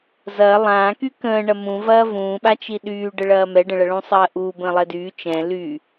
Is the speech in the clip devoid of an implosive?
no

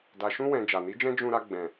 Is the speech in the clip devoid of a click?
yes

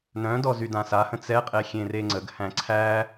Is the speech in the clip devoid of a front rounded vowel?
no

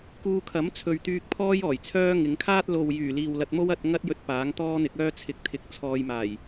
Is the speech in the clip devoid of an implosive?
yes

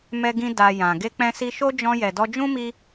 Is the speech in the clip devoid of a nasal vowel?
no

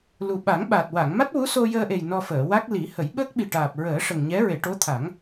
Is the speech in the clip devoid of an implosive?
no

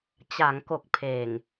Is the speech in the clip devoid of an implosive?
yes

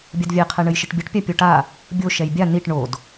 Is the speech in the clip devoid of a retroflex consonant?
no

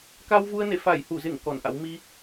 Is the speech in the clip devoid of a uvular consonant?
yes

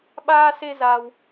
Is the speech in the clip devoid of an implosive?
no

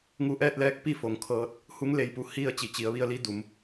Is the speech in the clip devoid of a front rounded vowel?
yes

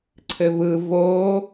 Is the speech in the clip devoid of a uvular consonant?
yes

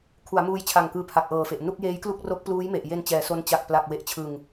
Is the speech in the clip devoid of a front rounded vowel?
yes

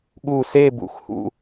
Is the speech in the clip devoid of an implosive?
no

